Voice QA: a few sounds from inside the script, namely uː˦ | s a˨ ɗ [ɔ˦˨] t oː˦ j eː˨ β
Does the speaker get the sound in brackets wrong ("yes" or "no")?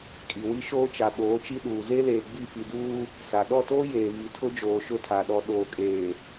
no